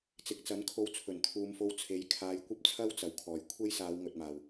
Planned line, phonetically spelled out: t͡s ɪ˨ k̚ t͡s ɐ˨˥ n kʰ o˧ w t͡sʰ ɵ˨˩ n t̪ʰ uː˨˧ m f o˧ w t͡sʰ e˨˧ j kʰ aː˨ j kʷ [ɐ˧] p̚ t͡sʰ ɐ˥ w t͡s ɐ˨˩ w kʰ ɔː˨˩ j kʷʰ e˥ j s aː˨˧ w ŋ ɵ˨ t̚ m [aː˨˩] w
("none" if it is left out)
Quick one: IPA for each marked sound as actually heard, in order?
ɐ˥, aː˨˩

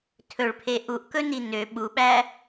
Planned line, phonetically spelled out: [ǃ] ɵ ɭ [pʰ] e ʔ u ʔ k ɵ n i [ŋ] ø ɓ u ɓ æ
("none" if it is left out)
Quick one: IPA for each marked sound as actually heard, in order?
tʰ, pʰ, n

